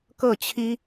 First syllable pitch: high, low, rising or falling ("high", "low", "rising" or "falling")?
falling